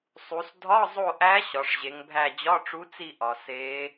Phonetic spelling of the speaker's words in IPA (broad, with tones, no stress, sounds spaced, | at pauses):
sˤ u˩˧ s dʱ ɒ˧˥˧ zˤ o˦˨ ʔ æ˧˥ ɕ ɒ˩˧ ʂ ʑ e˩˧ ŋ bʱ æ˦˨ d͡ʑ ɒ˧˥˧ ʈ͡ʂ u˧˥ t͡s i˦˨ ʔ ɒ˩ s e˧˥